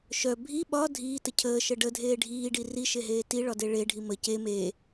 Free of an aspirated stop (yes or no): no